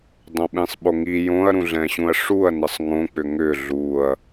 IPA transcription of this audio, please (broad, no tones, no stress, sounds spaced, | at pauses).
dˤ õ ɓ ĩ sˤ ɓ o ŋ i j õ ɐ̯ ɾ ũ ɮ ɛ̃ ɕ ũ ɐ̯ ʂ u ɐ̯ n ə sˤ ŋ õ k͡p ʏ ŋ ʏ ɮ u ɐ̯